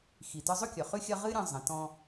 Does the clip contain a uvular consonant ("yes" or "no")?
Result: yes